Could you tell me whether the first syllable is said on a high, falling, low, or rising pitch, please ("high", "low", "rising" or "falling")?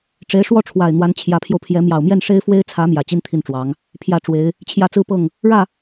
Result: rising